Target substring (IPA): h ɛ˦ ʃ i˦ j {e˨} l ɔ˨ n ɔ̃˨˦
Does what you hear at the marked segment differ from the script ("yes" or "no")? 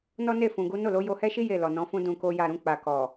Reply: yes